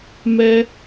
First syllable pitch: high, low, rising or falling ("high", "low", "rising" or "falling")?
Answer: high